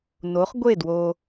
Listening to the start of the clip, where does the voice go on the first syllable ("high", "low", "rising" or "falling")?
rising